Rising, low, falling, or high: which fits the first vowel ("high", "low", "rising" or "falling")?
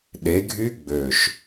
rising